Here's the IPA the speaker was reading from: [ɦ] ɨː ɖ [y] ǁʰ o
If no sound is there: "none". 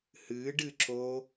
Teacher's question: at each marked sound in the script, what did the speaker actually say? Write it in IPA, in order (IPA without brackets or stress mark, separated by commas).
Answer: h, ɨ